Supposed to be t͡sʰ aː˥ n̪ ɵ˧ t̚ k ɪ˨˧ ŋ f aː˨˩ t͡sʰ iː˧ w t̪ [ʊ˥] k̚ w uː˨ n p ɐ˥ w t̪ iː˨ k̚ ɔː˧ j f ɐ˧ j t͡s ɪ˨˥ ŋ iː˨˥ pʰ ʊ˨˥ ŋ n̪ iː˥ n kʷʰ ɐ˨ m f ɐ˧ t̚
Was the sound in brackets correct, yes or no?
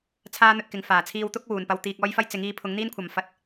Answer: yes